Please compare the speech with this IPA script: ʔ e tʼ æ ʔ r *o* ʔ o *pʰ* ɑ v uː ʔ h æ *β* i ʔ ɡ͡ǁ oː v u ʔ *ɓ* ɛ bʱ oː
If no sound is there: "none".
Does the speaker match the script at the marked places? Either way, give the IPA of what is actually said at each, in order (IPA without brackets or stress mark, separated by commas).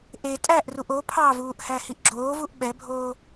u, pʰ, h, ɓ